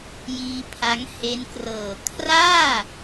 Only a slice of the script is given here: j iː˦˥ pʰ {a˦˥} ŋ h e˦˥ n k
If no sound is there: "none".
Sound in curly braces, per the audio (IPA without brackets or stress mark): a˦˥